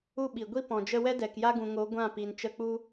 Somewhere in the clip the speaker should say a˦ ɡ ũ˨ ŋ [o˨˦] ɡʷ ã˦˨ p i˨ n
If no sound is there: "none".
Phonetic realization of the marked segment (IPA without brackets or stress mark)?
o˨˦